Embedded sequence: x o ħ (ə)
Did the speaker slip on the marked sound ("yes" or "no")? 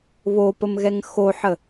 no